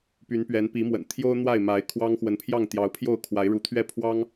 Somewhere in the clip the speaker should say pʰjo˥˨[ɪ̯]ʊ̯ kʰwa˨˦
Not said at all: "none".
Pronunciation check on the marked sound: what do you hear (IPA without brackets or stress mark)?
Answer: none